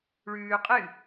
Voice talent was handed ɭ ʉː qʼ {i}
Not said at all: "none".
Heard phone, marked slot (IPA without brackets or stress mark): ɨ